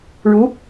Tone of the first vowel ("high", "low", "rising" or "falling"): rising